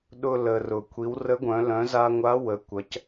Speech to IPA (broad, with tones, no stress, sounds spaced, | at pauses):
ɗ ʊ˧ l ə˩ r ʊ˩ kʷʰ i˩˧ w r ə˧˥ ɡʷ œ̃˩˧ l œ̃˩˧ z a˧ ŋʷ a˧˥ w ə˩˧ kʷ ɐ˩˧ c